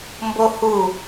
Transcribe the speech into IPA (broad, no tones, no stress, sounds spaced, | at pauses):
m b o h u